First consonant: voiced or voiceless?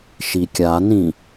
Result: voiceless